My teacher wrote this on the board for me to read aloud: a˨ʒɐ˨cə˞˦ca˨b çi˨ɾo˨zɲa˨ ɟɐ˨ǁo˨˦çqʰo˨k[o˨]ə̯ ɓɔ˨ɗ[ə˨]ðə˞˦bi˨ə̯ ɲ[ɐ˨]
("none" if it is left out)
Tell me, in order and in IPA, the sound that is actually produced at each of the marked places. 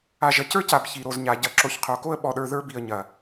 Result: o˦, ə˞˨, ɐ˨

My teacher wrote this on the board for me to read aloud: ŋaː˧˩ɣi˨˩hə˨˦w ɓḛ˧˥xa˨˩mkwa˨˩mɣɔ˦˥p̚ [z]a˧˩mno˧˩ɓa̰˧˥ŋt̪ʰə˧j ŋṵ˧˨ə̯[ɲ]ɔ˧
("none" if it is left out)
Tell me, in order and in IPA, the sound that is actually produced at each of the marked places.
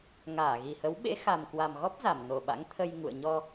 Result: z, ɲ

